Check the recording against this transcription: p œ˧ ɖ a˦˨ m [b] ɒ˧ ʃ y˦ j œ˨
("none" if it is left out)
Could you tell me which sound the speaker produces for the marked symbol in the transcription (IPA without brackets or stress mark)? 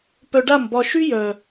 b